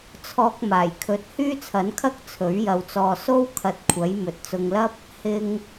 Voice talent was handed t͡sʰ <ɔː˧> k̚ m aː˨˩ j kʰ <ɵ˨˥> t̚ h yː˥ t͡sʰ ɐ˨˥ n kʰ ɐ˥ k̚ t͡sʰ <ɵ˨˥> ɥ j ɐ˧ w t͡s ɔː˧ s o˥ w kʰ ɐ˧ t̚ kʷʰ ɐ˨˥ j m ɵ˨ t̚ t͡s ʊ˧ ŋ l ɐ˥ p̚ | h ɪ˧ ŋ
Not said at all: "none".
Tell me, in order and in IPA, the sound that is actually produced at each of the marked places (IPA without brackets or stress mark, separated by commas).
ɔː˧, ɵ˨˥, ɵ˨˥